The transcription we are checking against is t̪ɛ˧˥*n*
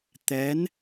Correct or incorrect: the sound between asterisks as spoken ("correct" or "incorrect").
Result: correct